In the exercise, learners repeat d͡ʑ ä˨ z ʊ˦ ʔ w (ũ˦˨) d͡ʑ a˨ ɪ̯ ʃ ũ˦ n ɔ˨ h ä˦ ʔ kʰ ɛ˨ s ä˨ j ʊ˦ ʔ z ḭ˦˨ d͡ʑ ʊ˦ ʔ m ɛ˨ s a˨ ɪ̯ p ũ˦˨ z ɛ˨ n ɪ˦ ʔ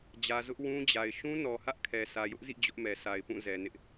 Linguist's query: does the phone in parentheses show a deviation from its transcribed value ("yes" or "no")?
yes